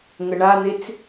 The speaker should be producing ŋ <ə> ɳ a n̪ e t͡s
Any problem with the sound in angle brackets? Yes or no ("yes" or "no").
no